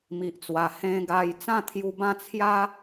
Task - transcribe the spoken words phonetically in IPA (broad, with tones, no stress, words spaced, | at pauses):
mi˨ʔt͡swa˨˩ hẽ˧ɡa˧j t͡sã˥˧t̪ʰju˧bã˥˧ t͡sʰja˦